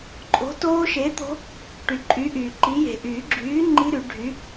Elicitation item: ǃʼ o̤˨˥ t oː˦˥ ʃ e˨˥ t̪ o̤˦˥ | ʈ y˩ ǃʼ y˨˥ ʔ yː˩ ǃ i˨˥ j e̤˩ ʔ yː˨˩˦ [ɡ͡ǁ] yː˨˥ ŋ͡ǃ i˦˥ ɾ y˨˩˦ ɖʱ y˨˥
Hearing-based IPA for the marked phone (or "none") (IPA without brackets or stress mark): ɡ͡ǁ